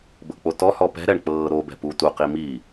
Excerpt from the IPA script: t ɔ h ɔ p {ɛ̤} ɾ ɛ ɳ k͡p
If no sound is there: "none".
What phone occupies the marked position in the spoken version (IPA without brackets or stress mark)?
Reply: ɛ̤